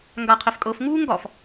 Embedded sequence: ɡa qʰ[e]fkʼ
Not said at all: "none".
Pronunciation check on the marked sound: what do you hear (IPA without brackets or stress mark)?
e